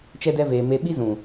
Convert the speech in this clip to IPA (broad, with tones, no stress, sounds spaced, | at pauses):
t͡ʃ ɛ˦ d ɛ˦ v eː˧ m e˧ ɓ i˦ z ũ˨